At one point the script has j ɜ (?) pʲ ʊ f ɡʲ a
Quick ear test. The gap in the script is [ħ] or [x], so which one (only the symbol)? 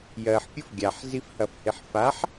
ħ